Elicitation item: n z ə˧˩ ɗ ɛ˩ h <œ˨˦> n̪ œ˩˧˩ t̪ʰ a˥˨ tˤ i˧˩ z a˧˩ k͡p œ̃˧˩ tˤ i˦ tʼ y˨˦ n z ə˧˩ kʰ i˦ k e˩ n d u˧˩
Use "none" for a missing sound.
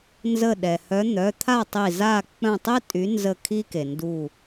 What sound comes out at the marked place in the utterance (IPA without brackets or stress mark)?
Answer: œ˨˦